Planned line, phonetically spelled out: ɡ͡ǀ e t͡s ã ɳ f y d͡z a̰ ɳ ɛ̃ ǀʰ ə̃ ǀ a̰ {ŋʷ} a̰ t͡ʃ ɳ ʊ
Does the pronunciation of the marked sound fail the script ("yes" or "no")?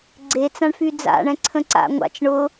no